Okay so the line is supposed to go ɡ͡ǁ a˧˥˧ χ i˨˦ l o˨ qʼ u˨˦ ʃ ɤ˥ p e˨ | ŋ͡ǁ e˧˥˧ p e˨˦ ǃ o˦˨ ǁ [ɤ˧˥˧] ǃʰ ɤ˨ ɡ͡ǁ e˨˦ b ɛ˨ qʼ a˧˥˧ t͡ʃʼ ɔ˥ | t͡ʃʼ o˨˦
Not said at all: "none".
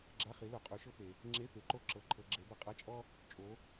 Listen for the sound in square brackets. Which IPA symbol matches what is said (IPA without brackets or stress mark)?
ɤ˨